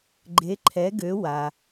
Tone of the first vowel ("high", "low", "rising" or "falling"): rising